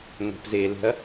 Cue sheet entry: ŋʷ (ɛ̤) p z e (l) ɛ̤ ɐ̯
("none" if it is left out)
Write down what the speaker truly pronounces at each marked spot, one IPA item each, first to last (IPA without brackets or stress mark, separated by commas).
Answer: ɛ̤, l